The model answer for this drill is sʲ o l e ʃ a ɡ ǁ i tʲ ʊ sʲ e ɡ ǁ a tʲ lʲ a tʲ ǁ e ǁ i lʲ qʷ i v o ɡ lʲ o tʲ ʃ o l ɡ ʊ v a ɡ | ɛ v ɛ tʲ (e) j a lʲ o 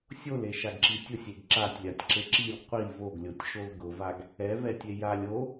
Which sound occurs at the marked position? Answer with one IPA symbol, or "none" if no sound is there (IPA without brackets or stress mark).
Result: e